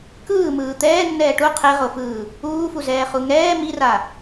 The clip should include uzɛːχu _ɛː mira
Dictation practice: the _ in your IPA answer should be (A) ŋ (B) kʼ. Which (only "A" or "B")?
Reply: A